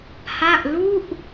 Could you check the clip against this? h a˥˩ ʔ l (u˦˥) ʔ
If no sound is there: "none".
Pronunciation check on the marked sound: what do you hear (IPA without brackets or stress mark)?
u˥˩